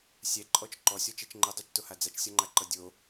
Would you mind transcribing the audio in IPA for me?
sʲ ɛ ǃʼ ɔ t͡ʃ ǃ ɔ sʲ ɔ t͡ʃ ɛ t͡ʃ ŋ͡ǃ ɛ dˤ o t͡ʃ t o h a d͡z a t͡ʃ sʲ ɔ ŋ͡ǃ a ǃ ɤ dʲ o

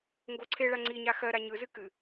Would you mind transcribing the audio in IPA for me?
ŋ ɡ o ǀʰ e ɭ a ŋ͡ǀ i ɲ a x ɜ ɾ a ɲ ɯ z ɨ k ɨ

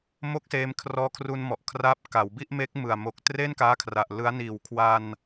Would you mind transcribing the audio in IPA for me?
m o˦˥ k̚ s eː˧ m kʰ r ɔː˧ kʰ r u˧ n m ɔ˨˩ ʔ kʰ r aː˦˥ p̚ k a˩˦ w b i˥˩ ʔ m e˦˥ k̚ m ɯ˨˩ a̯ m o˨˩ k̚ t r e˥˩ n k aː˦˥ kʰ r a˨˩ ʔ l ɯ˦˥ a̯ n iː˨˩ w kʰ w a˧ n

